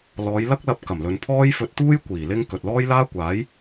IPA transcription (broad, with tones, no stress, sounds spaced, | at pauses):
l ɔː˨˧ j l ɐ˥ k̚ l ɐ˧ p̚ k ɐ˨˩ m l ɵ˨ n pʰ ɔː˥ j f ɵ˧ t̚ t̪ uː˥ j kʷ iː˨˩ l ɪ˥ ŋ k ɵ˨ t̚ l ɔː˥ j l aː˥ kʷ aː˨˥ j